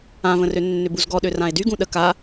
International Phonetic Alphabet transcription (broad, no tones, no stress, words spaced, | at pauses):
ãvə̃rø nːʏbuzɡɔɗø rãe̯dyɡũ ɗə ka